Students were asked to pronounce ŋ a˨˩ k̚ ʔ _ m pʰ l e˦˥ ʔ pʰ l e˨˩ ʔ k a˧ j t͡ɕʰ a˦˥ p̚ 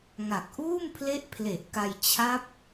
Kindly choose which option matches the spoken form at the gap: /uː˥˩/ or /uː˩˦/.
uː˥˩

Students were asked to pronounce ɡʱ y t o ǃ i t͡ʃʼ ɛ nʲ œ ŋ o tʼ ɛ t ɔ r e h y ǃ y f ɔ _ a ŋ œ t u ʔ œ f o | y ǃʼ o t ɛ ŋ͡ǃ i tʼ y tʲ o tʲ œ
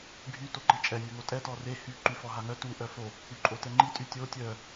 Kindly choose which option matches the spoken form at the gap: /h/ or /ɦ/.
ɦ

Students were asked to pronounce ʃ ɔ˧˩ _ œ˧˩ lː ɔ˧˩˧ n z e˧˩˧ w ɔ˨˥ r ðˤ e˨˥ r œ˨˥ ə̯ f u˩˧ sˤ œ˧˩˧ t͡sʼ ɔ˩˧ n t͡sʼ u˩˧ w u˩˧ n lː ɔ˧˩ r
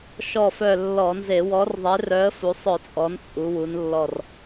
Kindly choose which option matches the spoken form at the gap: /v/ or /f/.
f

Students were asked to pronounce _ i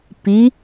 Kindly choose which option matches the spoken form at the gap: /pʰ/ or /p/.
p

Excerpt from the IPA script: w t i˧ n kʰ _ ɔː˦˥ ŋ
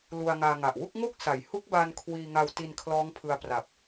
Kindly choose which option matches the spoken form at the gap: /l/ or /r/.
l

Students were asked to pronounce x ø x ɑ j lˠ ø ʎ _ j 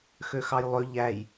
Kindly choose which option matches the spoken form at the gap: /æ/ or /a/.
æ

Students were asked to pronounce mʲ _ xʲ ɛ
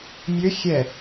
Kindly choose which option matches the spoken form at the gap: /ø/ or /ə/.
ø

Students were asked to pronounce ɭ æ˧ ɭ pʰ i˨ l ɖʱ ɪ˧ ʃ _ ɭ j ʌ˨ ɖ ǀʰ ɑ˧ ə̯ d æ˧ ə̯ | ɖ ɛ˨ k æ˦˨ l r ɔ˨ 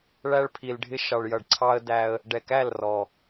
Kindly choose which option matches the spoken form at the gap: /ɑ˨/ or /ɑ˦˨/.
ɑ˨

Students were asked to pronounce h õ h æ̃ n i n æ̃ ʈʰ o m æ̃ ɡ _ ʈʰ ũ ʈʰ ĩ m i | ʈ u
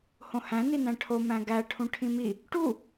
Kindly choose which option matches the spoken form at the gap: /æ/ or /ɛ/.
æ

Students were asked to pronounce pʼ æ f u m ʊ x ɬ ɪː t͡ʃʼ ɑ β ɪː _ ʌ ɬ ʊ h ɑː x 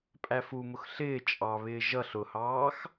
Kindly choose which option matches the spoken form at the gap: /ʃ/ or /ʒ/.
ʒ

